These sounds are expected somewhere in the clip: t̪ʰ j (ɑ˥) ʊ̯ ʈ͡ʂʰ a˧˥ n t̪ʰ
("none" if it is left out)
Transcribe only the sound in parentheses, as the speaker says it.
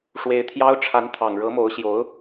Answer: ɑ˥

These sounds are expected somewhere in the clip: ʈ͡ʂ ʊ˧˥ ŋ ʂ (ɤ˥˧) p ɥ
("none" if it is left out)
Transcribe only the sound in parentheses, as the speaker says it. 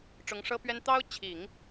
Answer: ɤ˥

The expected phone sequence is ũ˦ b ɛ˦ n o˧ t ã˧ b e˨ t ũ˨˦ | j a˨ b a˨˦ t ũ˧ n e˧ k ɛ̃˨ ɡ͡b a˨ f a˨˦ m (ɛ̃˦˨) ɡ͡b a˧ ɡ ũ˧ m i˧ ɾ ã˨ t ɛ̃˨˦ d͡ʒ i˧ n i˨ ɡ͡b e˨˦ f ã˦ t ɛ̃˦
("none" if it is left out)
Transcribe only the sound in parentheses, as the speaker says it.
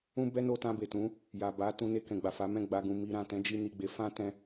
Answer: ɛ̃˦˨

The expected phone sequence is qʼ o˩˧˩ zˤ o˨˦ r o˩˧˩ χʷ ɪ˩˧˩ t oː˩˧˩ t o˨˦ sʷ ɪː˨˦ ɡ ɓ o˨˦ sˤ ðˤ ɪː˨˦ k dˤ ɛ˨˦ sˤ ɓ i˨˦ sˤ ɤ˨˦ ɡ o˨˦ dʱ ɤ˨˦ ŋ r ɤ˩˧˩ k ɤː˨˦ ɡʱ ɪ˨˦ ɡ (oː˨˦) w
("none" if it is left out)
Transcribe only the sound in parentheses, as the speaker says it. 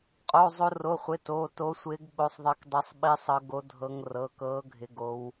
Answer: o˨˦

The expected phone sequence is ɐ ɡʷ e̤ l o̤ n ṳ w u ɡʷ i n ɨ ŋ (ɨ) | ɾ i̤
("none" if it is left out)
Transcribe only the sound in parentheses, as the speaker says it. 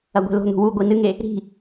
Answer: e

